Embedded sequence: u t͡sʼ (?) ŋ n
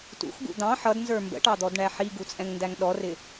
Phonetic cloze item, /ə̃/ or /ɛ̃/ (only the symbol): ɛ̃